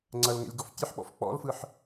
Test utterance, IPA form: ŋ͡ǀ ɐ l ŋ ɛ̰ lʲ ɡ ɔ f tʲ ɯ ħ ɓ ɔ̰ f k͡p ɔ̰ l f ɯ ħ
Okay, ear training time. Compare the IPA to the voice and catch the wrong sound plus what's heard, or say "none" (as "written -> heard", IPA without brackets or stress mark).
none